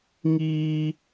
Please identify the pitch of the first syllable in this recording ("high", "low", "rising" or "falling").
high